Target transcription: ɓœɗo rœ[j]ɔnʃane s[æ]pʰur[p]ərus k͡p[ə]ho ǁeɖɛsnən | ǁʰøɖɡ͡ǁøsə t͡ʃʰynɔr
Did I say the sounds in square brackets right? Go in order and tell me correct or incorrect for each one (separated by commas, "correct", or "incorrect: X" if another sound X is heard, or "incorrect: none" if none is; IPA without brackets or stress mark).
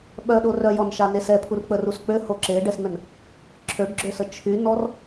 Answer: correct, incorrect: ɛ, incorrect: k͡p, incorrect: ø